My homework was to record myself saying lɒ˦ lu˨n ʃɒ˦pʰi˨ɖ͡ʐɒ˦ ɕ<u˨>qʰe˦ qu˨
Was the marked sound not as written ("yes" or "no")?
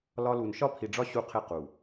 yes